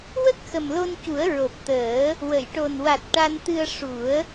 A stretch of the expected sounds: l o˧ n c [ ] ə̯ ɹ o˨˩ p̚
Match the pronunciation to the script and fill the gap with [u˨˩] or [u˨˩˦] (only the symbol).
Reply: u˨˩˦